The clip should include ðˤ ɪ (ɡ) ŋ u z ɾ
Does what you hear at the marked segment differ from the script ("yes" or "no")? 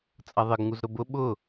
no